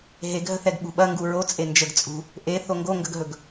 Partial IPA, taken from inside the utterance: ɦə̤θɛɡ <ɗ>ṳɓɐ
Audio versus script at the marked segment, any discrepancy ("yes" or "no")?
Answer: yes